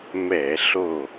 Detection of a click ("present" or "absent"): absent